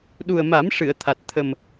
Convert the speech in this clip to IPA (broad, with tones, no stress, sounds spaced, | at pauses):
ɗ u˨˩ ə̯ m a˨˩˦ m ʂ ɨ˨˩˨ ə̯ t̪ʰ a˨˩ t̚ t̪ʰ ə˨˩ m